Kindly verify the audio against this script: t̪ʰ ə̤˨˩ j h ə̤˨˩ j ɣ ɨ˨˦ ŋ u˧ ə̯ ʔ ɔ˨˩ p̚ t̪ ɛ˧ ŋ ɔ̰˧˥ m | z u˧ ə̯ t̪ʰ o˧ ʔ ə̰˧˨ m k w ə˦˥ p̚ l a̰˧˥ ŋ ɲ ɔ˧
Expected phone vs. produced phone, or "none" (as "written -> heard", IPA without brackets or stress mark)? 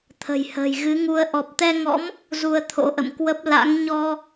o˧ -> o̰˧˥